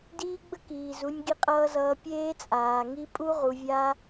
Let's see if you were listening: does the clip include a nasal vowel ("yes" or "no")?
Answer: no